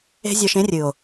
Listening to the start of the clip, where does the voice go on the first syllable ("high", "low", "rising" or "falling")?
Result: high